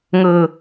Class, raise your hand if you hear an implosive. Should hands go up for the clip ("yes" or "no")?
no